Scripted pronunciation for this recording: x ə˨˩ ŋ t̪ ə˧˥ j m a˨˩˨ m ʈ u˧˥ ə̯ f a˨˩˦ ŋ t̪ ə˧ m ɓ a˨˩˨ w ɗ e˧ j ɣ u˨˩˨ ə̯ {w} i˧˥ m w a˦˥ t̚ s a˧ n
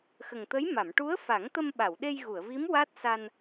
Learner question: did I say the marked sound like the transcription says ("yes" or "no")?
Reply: no